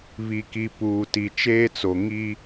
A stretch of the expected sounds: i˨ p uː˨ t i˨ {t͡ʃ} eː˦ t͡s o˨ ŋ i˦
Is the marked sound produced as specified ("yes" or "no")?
yes